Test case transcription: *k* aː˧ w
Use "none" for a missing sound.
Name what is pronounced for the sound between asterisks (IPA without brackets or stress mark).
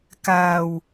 k